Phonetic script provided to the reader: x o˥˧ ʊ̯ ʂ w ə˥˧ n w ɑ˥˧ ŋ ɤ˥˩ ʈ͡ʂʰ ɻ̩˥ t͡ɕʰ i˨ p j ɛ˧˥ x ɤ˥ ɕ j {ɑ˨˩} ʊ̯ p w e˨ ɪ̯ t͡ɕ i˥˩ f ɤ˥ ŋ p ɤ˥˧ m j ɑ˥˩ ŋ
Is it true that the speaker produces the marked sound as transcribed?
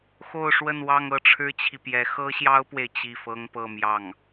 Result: no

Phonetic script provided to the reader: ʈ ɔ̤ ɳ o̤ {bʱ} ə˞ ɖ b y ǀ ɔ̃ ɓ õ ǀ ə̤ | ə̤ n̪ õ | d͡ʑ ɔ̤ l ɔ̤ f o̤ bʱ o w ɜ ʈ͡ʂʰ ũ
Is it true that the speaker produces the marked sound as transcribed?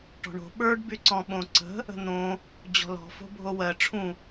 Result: no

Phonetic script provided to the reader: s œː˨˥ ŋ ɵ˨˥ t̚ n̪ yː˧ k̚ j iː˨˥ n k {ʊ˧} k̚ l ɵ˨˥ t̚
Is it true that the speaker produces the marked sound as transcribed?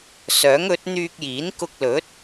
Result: yes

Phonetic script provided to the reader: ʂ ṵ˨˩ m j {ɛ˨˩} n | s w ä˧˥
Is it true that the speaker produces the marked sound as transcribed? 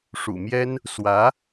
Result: no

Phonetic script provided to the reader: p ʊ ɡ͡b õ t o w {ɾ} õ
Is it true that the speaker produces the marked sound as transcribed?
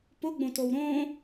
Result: yes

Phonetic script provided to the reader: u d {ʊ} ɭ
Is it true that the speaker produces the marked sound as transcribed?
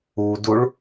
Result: no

